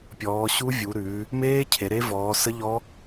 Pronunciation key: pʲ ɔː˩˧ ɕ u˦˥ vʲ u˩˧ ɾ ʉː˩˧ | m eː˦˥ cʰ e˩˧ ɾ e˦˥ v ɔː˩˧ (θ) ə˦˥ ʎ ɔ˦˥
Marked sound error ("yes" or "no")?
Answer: yes